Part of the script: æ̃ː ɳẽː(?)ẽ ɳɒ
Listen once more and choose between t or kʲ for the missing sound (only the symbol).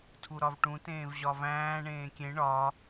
kʲ